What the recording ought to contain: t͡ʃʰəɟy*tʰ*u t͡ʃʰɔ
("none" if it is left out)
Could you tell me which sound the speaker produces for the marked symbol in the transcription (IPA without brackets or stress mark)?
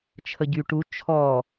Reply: ʈ